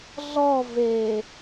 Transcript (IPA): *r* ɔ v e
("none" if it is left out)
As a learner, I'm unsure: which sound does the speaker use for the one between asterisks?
ɮ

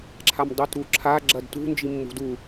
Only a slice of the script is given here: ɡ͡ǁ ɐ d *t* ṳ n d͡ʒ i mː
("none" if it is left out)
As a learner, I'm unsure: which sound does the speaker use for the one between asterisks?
t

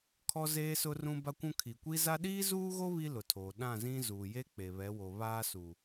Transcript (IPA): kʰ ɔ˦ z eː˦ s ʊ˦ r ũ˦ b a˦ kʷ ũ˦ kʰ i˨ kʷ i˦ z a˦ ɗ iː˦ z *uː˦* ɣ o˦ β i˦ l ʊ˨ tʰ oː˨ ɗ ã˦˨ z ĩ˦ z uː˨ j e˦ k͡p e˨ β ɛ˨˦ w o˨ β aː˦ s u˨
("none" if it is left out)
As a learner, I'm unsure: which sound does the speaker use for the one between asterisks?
uː˦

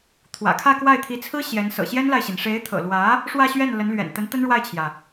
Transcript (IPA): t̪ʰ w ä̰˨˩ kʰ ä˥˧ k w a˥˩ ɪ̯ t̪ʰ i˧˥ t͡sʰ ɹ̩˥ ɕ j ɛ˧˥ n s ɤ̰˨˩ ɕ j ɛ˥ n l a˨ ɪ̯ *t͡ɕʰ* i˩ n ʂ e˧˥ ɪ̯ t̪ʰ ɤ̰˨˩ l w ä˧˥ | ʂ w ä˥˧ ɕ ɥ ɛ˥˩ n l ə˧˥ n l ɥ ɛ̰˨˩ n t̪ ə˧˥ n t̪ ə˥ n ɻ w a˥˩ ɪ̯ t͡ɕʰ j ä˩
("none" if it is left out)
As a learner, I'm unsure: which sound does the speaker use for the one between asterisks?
ɕ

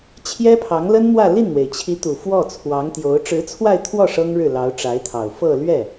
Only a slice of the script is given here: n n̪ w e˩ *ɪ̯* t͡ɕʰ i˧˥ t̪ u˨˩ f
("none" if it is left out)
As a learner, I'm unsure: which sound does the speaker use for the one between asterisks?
ɪ̯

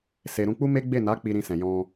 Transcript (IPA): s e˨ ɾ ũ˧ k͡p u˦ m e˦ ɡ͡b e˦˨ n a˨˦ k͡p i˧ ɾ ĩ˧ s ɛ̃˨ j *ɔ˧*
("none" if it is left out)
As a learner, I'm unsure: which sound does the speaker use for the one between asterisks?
ɔ̃˧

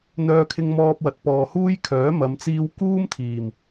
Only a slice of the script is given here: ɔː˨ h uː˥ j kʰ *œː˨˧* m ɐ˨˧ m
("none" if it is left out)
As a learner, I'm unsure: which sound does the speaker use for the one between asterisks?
œː˨˥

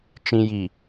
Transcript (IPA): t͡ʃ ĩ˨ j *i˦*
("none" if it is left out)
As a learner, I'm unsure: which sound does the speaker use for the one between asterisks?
i˨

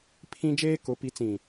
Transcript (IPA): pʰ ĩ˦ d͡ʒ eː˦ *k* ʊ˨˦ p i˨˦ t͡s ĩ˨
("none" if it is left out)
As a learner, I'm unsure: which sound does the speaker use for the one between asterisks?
k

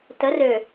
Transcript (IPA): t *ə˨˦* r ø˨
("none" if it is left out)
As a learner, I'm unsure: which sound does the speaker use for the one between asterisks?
ə˨˦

